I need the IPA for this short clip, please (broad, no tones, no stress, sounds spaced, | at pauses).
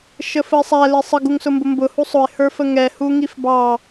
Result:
ʃ ə f ə ɪ̯ sˤ æ l i sˤ ə ɡ u ŋ s ʊ m b ʊ m b ʊ h u sˤ ʊ ɪ̯ h ə˞ f ə ŋ ɛ h u ŋ i f b ɑ